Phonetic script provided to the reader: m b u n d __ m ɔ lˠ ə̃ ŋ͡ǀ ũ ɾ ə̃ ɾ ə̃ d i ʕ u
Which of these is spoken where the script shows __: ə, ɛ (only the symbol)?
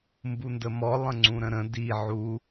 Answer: ə